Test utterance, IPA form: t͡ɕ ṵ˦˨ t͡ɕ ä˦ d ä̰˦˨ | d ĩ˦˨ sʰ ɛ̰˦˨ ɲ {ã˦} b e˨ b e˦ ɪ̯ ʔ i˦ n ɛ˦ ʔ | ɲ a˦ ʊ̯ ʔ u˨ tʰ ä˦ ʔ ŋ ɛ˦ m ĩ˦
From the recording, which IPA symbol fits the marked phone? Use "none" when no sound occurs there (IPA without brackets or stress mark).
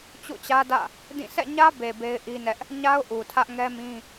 ä˦